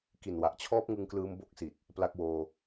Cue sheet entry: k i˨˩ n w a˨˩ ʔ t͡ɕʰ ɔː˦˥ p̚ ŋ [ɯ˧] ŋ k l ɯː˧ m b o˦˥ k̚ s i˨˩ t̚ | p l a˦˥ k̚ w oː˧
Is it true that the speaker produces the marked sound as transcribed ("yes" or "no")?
yes